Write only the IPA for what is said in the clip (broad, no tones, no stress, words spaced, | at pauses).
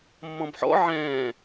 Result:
mːɔ̃bħɔ̰ ʕɛ̃ː